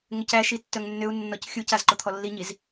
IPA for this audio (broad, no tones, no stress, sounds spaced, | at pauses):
ŋ ʏ c æ ʃ i tː œ ŋ nː ʏ u̯ nː ɔ c xʲ u c a z ǃ o t̪ʰ ɔ lː i ɲ i z